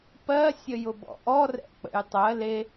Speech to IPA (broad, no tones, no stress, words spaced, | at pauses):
pɜsʲəjʊbɔ̰ ʔɔrɛ̰k͡pə̰j tˤɜ le